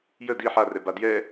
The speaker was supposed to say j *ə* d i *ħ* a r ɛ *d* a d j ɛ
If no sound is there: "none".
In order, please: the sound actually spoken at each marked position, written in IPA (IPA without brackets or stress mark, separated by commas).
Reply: ə, ħ, b